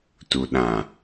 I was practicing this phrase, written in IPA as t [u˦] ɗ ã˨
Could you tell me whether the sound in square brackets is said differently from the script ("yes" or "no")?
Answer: yes